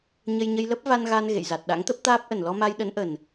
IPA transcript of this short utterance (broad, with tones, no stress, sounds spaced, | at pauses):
ɲ ə˧ j ɲ ə˧ j l ə˦˥ p̚ v a˧ n ɣ a˧ n ɣ ḛ˧˨ j z a˨˩ t̚ ɗ a̰˧˥ ŋ t̪ ə˦˥ p̚ t̪ aː˦˥ p̚ ʔ ə˨˩ n l ɔ˧ m a˧ j ɗ ə˨˦ n ʔ ə˨˩ n